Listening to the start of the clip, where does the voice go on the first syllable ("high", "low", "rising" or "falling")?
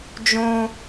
high